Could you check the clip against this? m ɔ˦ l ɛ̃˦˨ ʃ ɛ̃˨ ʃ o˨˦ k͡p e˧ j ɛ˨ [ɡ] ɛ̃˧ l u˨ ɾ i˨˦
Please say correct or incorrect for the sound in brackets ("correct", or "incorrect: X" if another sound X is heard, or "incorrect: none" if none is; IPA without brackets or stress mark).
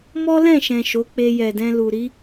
incorrect: d